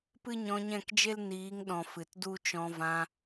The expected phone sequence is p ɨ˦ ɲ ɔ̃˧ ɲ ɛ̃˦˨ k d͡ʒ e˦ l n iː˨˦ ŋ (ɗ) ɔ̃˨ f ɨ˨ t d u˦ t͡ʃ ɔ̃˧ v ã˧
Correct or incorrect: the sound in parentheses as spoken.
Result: correct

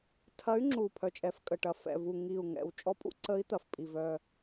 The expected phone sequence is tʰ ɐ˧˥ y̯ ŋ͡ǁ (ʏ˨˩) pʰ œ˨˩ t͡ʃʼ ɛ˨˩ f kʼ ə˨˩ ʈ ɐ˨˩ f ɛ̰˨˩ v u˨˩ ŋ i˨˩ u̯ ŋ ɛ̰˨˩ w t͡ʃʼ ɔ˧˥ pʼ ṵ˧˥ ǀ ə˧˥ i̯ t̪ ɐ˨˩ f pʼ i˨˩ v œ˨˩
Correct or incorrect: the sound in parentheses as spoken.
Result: incorrect: u˨˩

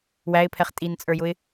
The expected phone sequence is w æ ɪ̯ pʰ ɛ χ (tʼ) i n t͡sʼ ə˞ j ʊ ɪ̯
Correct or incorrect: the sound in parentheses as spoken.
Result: correct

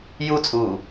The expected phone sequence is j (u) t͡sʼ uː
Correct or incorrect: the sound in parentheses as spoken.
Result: correct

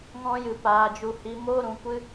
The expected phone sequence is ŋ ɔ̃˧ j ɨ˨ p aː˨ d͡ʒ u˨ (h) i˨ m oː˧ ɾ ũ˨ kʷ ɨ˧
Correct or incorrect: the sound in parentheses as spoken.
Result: correct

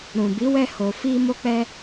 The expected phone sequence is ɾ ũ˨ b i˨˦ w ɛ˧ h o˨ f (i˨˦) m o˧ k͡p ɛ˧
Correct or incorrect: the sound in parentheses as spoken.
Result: incorrect: i˧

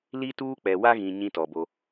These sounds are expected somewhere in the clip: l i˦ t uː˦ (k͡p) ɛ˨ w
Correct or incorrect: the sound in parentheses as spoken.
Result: correct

